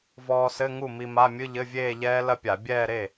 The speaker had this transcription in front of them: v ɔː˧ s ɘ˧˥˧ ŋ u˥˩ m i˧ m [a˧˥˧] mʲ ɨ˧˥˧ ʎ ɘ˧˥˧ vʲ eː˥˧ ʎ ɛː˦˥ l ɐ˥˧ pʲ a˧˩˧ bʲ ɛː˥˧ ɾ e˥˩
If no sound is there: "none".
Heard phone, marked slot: a˧˥˧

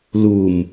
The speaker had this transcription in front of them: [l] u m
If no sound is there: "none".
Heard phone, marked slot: l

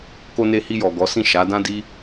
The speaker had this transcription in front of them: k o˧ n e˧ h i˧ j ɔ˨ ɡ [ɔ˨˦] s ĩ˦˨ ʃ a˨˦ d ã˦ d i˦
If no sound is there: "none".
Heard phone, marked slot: ɔ˨˦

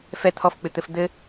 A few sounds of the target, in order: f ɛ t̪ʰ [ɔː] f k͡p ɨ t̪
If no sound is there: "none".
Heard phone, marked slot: ɔ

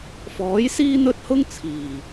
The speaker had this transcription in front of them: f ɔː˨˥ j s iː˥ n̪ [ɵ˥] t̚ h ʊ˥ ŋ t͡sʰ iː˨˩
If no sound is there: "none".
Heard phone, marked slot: ɵ˥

